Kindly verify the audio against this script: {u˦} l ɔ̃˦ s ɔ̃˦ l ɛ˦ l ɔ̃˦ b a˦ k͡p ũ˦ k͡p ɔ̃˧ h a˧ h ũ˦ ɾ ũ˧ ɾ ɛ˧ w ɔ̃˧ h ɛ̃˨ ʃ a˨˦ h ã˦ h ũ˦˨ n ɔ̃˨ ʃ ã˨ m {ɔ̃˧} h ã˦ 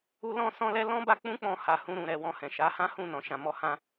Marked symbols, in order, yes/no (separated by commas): yes, no